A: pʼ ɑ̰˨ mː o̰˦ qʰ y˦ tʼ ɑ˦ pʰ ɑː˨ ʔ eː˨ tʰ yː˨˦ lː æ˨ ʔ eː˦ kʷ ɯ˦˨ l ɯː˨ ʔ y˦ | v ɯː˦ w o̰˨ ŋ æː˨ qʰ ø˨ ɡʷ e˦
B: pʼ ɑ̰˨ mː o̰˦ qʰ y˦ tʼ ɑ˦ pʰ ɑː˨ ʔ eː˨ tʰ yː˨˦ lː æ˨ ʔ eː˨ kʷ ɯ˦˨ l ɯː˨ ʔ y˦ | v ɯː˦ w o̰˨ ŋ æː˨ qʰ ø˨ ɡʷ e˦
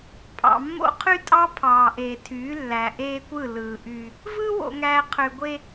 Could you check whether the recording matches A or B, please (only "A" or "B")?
A